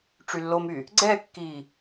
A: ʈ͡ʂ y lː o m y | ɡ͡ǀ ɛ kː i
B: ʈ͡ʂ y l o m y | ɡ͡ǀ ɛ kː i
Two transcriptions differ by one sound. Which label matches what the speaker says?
A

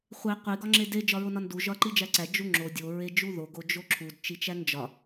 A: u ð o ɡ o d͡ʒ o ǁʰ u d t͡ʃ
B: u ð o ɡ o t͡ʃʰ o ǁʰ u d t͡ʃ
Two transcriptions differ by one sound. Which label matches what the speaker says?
A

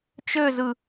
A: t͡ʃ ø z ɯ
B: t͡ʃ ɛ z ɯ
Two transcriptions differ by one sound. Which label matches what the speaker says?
A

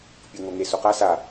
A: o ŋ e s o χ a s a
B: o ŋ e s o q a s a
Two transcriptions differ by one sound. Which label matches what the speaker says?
B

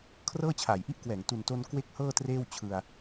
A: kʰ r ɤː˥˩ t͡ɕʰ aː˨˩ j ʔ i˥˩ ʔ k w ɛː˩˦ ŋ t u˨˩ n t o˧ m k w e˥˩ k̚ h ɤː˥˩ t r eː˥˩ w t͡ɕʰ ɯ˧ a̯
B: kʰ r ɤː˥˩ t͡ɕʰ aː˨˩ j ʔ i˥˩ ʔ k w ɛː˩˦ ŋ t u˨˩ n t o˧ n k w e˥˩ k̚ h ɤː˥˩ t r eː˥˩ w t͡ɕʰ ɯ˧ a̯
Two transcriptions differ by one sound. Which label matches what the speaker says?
B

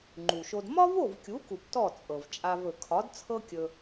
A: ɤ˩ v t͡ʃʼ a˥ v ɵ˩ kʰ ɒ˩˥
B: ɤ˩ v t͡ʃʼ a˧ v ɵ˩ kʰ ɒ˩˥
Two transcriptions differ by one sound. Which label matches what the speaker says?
B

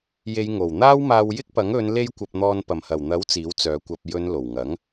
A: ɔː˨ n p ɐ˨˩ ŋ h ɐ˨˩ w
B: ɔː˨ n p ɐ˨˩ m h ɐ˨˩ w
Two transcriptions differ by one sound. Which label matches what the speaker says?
B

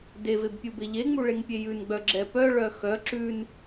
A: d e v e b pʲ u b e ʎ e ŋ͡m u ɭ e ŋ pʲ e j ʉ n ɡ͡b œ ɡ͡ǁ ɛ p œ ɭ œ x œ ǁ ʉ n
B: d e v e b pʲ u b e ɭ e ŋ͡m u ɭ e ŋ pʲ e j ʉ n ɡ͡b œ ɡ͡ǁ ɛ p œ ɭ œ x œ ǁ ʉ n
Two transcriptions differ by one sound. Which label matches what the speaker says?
A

